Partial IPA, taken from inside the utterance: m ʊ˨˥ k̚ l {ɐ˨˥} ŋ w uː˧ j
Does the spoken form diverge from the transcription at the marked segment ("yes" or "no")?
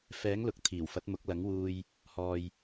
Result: no